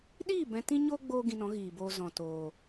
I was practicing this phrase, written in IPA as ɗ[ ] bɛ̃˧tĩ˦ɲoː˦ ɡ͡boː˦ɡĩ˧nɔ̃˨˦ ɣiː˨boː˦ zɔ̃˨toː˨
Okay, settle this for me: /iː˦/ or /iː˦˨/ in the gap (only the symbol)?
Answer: iː˦˨